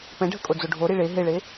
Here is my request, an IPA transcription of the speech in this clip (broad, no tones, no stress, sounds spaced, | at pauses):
p ɛ̃ ɖʱ ə kʼ o d͡z o ɖʱ o ɾ i ɭ e ɦ e ɭ e